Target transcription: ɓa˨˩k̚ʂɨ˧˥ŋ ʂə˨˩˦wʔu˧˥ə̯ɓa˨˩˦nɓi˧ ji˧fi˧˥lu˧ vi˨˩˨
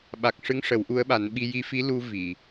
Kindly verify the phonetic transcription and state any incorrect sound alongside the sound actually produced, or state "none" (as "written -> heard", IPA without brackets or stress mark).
none